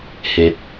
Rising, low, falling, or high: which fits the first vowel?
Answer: low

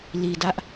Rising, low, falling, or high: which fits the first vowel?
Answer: low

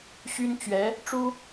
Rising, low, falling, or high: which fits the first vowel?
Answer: high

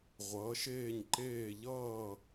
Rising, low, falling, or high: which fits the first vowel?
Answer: rising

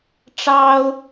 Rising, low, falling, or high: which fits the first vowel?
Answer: high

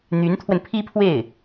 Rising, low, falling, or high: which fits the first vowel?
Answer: rising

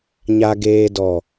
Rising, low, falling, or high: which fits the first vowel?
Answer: low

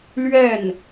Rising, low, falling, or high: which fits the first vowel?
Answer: falling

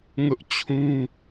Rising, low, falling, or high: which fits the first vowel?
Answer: high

